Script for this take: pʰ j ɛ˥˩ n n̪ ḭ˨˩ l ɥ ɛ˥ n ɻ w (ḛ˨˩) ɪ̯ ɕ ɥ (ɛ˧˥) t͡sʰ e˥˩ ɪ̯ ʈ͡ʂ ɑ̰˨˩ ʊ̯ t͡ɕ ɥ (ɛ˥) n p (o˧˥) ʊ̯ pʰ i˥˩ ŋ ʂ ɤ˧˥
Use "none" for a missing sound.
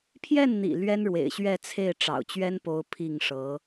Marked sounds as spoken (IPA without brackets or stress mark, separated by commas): ḛ˨˩, ɛ˥˧, ɛ˥, o˧˥